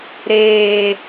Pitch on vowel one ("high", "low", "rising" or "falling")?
low